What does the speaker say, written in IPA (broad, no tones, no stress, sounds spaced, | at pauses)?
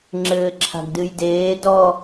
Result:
ŋ͡ǁ ɘː ǁʰ a̤ ɡ d ɨ j d eː d ɔ